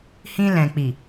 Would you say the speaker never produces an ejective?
yes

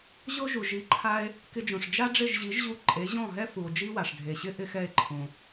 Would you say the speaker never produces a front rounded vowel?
yes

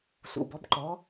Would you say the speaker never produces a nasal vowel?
yes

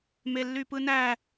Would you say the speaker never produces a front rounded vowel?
no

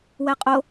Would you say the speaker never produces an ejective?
no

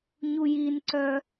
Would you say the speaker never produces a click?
no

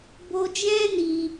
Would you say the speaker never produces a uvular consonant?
yes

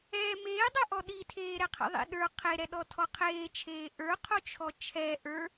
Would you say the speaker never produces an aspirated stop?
no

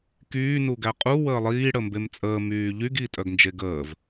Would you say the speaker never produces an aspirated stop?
yes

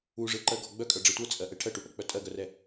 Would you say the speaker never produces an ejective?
no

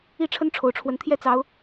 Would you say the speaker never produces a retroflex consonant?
no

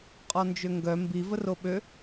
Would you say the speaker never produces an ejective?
no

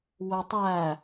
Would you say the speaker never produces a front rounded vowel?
no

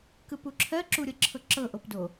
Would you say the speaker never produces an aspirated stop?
no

